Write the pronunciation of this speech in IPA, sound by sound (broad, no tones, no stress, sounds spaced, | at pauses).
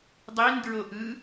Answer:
dˤ i n d ɹ o ʔ ɯ